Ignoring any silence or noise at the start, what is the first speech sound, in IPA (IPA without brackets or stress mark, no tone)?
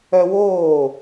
œ